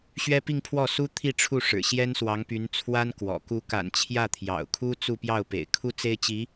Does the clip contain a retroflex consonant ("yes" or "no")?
yes